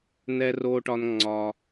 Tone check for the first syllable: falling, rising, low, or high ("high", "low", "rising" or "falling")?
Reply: low